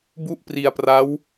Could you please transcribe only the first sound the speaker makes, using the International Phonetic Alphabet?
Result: b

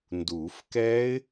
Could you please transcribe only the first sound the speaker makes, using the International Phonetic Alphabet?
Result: n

